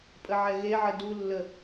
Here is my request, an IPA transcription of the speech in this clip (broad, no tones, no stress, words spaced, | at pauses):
pʼəʕɛɣeʕə dulːə